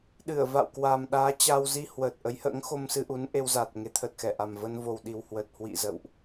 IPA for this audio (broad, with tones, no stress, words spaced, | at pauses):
ɗɨ˧˩ə̯va̰˧˨w kwaː˨˩mɗaː˨˦t͡ɕa˧w zi˧ hwəː˨˩t̚ʔə˨˦jhə̰ː˧˥ŋ xo˧msɨ˧ ʔu˨˦nʔe˧wza˨˩t̚ ŋe˨˦t̪ʰə˨˩t̚xɛ˧˩ʔa˨˩m və˧nvo˨˩wɗi˨˩whwə˨˩t̚ hwḭ˧˨ zə̰˧˨wʔ